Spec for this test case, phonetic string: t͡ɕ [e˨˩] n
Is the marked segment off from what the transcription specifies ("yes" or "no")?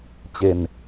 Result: yes